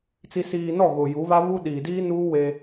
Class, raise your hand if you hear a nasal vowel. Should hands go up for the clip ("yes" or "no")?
no